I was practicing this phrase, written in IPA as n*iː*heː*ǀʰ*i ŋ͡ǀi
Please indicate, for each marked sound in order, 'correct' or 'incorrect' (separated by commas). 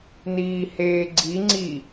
correct, incorrect